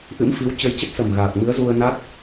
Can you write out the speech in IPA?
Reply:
ʔɨ̰˧˥mfi˨˦w t͡ɕə˧jt͡ɕə˦˥t̚sə˨˩mɣaː˨˩k̚ mɨ˨˦ə̯zu˧ə̯ na˦˥t̚

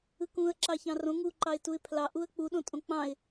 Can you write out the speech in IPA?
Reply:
ɯkũə̯ ǁɑçɑ̃rõ ŋuǃɑɪ̯tuɪ̯ pʰlɑ ʔuə̯k͡puɗõ tʼõk͡pɑ̃ɪ̯

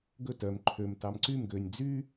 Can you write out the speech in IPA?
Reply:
ɡɵ tœm ǃʰøm tɑmǀym ɡønʲ d͡zy

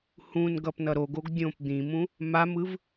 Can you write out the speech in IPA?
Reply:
hũnɡʌp nʌɾoɡoɡ dʲõp d̪ĩmũ | mamɯv

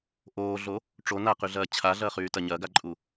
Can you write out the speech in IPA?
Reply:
ʔoːɮo | ʈ͡ʂo naqyɮɐː t͡ɕʰaɮɐːχyːtɐ ɲɐːɡaǃʼu

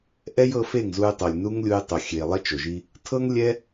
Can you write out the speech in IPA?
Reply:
ʔɛ˦j ɤ˧fe˦˨ŋ zu˧jtˤo˨lʲnu˦ŋlʲu˧j tˤo˨xʲe˨ lˠɛ˦t͡ʃo˨ʒi˦ | tʰɤ˦ŋlʲɛ˦

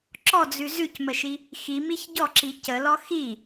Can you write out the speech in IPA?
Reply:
ǁɔd͡zʉ zʉcməʃi | ximiç ɟɔǁi cəlɔ xi

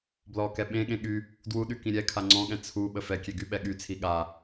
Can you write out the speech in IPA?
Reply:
blɔkɛ ɓẽɠẽ ɠy | dwuɗy kĩɾʲɛkʰa ŋ͡ǀɔ̃ɠɛ̃ t͡sʰu ɓəfɛkʲe ɡyɓɛɠyt͡sʰi ɠa

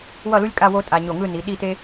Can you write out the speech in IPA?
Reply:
wʌ˥˧lu˥lʲkʼa˥˧ wo˥tʼa˧ ɲo˧˩ŋɯ˥˧ni˩˧ ɗi˥˧te˥

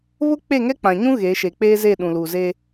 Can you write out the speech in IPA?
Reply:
βʊ˦ k͡pe˦˨ŋɛ˦k͡pã˨ɲũ˦ ɣe˨˦ ʃe˨k͡peː˦ze˦˨ ɗũ˨luː˨ zeː˦

